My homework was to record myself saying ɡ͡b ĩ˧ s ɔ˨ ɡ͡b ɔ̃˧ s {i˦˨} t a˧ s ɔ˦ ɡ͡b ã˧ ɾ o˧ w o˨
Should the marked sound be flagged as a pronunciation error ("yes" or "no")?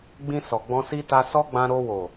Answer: yes